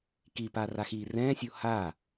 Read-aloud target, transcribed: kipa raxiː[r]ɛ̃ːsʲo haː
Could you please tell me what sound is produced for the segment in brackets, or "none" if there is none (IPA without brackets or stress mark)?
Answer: r